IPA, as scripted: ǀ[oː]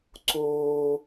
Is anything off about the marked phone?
no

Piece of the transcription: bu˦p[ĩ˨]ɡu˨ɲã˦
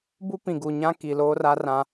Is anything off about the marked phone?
no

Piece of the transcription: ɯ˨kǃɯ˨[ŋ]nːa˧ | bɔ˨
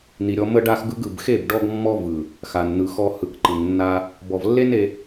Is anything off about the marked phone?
no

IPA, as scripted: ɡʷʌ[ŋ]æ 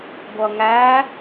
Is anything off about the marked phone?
no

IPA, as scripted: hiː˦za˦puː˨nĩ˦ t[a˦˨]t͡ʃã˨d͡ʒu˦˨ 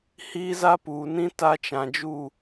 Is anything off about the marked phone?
yes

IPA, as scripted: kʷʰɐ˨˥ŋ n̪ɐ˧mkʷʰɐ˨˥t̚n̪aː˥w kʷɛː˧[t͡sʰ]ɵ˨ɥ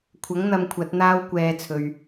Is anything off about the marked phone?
no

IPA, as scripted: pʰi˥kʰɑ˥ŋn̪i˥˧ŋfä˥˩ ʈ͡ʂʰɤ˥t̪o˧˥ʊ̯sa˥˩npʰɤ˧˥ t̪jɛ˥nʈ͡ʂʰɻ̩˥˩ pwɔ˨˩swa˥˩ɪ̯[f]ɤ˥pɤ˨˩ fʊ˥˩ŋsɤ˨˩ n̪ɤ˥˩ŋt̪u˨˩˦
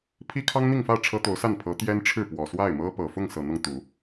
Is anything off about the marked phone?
yes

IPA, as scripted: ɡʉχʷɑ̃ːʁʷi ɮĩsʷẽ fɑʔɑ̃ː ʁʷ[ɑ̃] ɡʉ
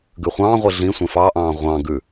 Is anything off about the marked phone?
no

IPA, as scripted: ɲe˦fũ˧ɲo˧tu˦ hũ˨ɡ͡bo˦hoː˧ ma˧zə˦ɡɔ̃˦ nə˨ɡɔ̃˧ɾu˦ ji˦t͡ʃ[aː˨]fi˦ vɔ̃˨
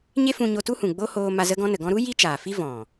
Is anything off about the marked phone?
no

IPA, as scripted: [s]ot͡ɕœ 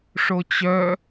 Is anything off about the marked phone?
yes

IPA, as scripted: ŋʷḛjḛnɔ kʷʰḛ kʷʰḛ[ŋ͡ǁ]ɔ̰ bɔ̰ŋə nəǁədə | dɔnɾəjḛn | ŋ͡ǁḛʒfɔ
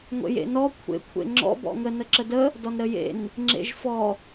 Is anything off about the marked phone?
no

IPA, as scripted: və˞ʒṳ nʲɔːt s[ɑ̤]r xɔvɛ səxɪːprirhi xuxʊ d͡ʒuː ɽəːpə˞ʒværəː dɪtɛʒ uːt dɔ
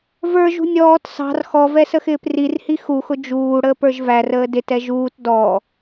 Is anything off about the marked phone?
no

